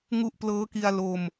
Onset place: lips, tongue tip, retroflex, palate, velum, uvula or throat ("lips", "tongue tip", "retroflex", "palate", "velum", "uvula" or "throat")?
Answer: velum